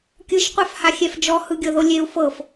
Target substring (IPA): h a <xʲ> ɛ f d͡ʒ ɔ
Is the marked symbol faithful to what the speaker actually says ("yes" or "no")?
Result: yes